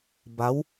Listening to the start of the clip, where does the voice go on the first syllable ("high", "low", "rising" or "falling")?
rising